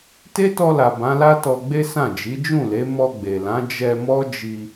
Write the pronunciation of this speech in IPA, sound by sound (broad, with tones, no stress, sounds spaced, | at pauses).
t e˦ t ɔ˧ l a˨ b ã˨˦ l a˦ t ɔ˧ ɡ͡b e˦ s ã˦˨ d͡ʒ i˨˦ d͡ʒ ũ˦˨ l e˨˦ m ɔ˧ ɡ͡b e˨ l ã˨˦ d͡ʒ ɛ˧ m ɔ˦ d͡ʒ i˧